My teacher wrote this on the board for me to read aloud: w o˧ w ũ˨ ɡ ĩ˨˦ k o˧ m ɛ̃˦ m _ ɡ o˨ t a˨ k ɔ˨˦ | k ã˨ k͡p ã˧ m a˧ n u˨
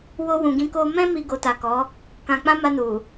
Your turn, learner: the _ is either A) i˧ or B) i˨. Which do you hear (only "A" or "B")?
A